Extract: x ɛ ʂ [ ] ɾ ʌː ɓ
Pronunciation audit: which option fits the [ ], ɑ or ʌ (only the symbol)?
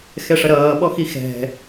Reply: ʌ